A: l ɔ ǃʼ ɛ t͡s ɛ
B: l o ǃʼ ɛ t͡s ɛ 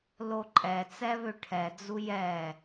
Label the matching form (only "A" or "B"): B